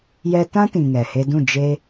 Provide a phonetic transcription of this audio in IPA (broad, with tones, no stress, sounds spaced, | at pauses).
j ɛ˧ t ã˦ t ĩ˨ ŋ ɛ˨ h e˧ d ũ˦˨ d͡ʒ e˦